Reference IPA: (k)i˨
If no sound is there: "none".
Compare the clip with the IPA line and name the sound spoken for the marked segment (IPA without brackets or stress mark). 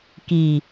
k